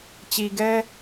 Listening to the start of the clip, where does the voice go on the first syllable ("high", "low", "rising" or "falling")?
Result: low